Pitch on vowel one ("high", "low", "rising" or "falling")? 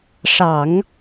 low